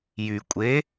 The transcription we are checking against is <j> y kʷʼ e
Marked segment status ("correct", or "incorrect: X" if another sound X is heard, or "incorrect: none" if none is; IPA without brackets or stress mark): correct